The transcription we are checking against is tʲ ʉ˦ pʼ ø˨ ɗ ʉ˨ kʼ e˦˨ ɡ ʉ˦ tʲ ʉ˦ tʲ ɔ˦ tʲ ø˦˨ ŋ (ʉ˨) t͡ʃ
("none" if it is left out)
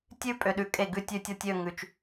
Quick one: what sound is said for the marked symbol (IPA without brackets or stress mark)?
ʉ˨